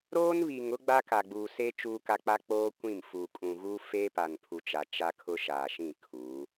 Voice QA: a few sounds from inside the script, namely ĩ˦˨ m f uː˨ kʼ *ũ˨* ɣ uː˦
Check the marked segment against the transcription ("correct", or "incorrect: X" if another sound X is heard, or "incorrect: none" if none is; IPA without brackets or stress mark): correct